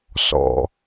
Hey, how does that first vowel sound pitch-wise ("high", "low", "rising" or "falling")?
low